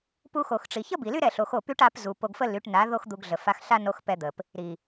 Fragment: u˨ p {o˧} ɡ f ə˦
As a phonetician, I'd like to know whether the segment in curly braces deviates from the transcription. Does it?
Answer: no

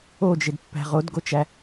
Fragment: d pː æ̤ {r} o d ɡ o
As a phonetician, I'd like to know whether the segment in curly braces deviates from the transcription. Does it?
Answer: yes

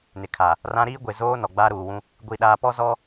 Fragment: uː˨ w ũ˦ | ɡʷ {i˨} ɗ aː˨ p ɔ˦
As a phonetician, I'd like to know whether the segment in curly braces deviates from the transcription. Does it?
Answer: no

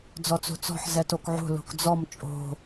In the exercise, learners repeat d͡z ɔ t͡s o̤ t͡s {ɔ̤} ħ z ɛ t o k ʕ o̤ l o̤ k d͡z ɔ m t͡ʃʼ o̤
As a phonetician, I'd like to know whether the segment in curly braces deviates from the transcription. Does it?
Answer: no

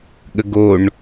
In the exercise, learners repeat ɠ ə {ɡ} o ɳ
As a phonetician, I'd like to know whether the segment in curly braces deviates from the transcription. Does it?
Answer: no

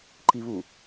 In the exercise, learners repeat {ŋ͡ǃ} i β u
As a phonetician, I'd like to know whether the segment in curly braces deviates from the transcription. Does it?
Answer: yes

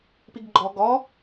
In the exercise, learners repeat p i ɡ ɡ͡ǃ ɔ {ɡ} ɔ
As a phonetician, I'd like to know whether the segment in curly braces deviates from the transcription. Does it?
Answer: no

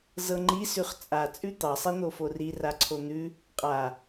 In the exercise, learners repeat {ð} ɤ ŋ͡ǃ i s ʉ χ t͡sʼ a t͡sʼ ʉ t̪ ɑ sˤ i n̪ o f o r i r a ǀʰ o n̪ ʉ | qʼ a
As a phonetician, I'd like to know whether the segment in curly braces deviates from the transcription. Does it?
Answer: yes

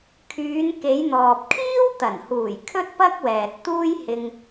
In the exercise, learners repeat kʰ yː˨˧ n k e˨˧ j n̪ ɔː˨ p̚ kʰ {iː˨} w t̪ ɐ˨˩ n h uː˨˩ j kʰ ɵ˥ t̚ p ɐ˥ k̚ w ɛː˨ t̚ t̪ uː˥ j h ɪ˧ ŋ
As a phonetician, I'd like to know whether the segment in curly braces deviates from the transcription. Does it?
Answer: yes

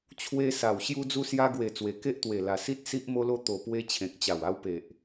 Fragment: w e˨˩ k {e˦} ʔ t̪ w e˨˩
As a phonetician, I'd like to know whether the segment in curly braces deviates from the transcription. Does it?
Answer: no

